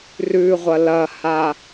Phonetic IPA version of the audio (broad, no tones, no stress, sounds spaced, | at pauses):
r ʉ ʁʷ ɐ l ɐ h a